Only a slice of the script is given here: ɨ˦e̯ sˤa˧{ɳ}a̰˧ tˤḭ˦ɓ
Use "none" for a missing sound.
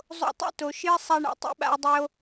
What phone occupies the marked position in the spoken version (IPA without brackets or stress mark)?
ɳ